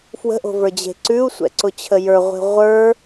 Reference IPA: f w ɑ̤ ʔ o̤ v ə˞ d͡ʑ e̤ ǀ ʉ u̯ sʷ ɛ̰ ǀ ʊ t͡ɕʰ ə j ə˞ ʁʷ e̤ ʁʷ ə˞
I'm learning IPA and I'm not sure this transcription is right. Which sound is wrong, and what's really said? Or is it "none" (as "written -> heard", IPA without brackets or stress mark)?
ɑ̤ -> ə̤